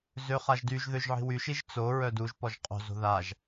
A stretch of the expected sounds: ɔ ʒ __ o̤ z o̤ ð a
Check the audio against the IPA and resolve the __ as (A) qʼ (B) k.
A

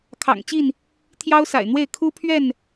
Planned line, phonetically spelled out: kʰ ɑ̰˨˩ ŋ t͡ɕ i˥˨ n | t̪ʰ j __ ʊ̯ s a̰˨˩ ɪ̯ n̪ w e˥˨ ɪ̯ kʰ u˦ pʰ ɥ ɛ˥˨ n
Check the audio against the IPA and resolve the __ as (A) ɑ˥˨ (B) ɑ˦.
B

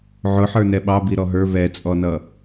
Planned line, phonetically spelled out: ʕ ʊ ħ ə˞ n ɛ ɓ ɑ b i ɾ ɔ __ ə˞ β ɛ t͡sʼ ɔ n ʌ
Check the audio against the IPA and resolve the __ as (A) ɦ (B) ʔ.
A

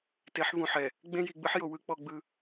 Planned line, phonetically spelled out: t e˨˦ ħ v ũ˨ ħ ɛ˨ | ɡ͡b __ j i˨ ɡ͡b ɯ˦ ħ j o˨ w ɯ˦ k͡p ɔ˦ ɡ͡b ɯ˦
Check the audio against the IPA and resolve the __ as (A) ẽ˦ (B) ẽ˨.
A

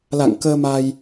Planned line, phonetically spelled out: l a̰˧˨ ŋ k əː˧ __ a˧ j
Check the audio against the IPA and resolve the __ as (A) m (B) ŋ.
A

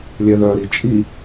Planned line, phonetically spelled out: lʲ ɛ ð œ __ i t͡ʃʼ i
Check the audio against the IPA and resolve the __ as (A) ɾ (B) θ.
A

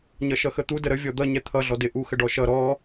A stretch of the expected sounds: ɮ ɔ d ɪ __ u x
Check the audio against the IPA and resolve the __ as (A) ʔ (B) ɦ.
A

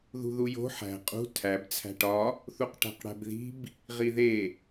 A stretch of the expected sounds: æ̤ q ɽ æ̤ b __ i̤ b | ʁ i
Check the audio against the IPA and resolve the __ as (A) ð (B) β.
A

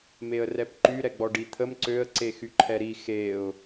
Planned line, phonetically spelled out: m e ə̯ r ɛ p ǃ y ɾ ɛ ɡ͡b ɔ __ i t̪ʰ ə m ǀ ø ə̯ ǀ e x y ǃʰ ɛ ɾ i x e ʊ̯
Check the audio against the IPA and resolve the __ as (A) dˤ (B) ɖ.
B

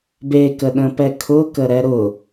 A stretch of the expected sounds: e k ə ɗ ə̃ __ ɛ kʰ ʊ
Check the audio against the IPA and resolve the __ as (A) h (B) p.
B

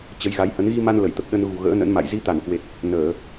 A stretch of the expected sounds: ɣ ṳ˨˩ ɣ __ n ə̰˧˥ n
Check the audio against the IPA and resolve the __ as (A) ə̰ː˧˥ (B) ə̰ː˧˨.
A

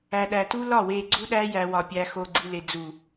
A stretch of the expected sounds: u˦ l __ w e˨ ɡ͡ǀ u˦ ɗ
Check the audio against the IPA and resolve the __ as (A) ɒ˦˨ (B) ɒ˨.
A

